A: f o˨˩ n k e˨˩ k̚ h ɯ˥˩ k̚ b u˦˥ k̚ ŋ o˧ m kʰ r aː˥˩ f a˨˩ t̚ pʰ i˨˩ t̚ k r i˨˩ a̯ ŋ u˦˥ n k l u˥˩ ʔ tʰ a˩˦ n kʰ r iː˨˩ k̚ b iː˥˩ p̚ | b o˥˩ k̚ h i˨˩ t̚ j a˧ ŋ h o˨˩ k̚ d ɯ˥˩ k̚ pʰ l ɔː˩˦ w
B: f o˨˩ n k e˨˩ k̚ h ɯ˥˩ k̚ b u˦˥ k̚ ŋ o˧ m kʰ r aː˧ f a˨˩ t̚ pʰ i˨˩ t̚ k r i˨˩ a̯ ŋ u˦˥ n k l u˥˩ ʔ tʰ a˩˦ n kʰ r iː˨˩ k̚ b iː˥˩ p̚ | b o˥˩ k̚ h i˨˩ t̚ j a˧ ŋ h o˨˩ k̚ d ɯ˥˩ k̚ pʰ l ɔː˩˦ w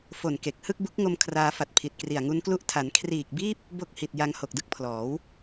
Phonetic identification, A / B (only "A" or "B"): B